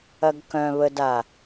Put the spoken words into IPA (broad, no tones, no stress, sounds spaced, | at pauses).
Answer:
ɐ ɡ k œ̃ β ə d a